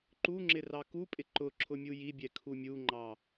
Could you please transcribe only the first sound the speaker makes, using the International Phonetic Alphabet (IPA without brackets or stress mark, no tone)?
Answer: ǃ